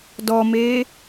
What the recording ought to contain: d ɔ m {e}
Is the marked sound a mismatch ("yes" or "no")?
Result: no